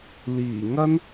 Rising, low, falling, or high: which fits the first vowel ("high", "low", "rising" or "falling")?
low